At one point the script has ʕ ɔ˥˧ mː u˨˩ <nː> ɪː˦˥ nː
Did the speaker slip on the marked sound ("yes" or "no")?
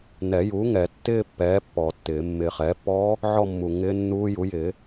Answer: yes